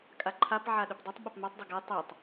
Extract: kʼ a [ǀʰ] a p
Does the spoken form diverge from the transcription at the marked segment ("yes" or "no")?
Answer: yes